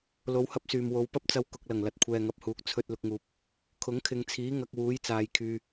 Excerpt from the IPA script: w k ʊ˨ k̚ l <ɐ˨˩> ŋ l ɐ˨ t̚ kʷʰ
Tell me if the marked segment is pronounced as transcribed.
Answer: yes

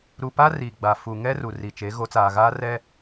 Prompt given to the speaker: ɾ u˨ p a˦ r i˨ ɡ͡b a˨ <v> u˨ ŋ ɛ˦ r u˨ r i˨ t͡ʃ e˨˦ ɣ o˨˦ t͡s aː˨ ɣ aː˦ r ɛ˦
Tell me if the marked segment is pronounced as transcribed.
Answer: no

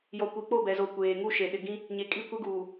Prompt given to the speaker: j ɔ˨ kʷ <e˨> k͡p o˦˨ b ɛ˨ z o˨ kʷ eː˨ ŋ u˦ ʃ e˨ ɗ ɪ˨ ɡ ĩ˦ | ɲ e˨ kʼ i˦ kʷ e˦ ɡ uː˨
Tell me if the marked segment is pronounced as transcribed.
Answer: no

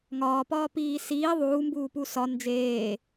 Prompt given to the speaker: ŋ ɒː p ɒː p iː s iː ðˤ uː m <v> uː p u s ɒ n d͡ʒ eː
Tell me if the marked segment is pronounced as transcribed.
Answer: no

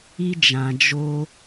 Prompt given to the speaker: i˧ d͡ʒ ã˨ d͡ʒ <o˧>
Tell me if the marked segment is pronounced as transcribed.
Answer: yes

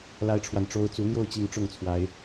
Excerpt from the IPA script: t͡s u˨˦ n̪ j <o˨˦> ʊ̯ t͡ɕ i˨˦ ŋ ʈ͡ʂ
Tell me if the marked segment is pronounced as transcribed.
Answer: no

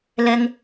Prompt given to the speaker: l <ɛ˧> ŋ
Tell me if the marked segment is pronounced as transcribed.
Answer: yes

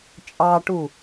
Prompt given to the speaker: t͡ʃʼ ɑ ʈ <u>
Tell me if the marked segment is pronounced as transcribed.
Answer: yes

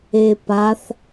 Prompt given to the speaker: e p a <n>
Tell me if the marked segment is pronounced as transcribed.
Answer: no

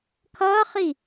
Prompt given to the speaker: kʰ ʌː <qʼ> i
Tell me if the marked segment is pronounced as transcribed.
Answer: no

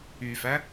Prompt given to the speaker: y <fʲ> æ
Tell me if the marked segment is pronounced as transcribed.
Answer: no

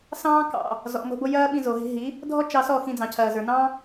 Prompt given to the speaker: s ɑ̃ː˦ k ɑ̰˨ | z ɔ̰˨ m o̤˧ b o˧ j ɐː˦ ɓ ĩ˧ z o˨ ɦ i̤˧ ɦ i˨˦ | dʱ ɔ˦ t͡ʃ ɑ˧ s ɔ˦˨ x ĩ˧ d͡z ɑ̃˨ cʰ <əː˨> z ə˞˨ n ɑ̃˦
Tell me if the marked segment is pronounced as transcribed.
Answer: no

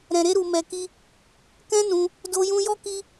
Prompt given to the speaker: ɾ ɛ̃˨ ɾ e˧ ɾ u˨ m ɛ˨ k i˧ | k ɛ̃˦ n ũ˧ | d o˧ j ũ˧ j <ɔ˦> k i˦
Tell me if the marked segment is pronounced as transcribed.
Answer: yes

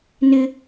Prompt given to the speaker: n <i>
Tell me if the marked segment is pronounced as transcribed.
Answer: no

